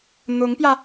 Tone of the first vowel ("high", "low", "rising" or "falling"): rising